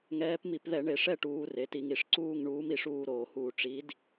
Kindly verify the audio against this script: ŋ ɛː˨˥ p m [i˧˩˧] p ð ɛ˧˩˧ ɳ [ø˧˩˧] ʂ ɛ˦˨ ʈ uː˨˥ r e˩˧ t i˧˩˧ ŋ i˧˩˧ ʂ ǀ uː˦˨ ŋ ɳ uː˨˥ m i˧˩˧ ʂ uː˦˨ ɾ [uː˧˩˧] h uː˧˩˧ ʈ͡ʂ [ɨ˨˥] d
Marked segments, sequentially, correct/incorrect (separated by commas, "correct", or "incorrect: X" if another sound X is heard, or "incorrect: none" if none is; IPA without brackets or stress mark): correct, incorrect: e˧˩˧, incorrect: oː˧˩˧, incorrect: i˨˥